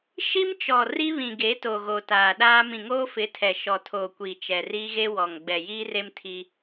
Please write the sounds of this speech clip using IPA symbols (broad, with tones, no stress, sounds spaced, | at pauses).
ʃ i˦ m t͡ʃ ɔ˨ r i˦ β ĩ˨ ɡ e˨˦ t o˨ ɣ o˨ t aː˨ ɗ aː˦ m ĩ˨ ŋ oː˦ f ɪ˨˦ tʰ ɛ˨ ʃ ɔ˨ tʰ oː˨ kʷ iː˨ t͡ʃ ɛ˨ r iː˦ ɣ e˦ w ɔ˨ ŋ ɡ͡b ɛ˨ j iː˦ r e˦ m tʰ i˦